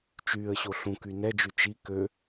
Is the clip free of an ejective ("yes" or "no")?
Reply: yes